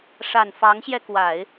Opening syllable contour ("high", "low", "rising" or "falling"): low